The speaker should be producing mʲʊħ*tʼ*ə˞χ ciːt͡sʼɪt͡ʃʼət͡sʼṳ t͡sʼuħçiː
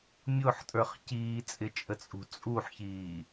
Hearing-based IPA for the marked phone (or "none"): tʼ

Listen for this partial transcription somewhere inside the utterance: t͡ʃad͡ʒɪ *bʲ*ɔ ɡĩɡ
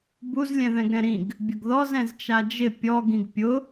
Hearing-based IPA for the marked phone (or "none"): pʲ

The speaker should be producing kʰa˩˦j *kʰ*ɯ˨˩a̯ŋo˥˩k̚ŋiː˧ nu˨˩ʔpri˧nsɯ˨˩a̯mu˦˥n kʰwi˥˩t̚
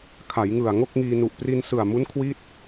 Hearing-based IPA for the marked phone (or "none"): ŋ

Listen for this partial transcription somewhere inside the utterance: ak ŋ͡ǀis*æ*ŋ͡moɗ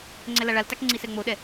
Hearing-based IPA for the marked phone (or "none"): ɛ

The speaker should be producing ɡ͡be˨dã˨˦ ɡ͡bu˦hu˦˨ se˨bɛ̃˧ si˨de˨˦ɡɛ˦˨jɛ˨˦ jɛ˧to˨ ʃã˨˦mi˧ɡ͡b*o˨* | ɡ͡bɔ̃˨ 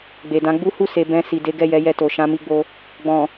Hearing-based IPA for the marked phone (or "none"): o˧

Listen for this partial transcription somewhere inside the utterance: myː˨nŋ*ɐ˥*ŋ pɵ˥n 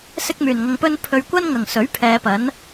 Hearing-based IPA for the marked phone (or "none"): ɐ˧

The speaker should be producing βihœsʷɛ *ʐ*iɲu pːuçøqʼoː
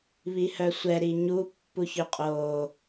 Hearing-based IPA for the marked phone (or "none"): ɾ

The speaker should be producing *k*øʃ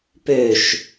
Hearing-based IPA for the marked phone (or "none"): p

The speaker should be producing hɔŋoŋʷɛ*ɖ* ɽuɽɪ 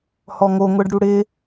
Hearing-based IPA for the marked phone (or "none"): ɖ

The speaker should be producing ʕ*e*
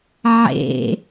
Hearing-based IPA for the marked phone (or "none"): ḛ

